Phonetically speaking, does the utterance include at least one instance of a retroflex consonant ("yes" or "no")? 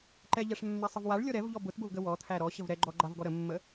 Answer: yes